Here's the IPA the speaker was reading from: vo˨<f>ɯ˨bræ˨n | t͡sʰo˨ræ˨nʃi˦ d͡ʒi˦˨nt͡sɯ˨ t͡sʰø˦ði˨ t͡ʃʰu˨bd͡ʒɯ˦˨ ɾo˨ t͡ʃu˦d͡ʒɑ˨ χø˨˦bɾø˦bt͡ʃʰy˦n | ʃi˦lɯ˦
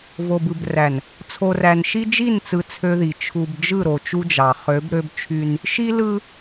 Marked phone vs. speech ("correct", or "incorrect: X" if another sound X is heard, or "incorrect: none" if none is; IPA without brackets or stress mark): incorrect: b